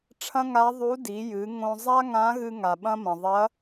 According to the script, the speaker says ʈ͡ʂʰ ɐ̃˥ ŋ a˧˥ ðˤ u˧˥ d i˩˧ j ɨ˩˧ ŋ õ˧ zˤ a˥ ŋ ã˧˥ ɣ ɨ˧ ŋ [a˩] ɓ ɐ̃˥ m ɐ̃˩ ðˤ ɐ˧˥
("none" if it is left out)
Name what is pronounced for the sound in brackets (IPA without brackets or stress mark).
a˩